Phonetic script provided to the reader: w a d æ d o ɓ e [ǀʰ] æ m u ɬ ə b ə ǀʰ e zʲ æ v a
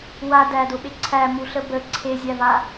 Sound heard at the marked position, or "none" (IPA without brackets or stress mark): ǀʰ